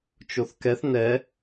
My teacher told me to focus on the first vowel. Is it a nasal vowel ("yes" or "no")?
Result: no